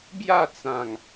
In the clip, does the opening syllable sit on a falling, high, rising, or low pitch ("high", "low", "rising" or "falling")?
falling